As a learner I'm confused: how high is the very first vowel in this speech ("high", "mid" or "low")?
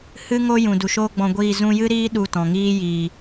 high